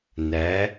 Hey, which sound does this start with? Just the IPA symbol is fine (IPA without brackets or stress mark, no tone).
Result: n